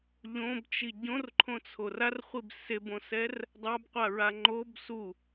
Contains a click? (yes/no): yes